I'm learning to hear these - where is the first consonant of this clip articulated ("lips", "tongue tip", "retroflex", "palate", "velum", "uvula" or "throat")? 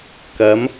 velum